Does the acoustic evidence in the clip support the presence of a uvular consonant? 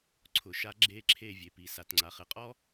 yes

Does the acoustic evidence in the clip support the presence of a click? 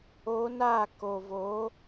no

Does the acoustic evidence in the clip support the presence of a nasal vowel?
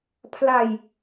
no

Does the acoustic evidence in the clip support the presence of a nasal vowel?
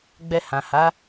yes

